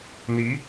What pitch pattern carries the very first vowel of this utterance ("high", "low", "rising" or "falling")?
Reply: rising